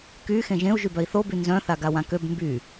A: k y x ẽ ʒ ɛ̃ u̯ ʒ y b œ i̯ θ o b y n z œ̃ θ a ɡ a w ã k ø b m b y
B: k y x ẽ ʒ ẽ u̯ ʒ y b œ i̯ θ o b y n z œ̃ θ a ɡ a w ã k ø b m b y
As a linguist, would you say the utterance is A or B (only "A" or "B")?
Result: B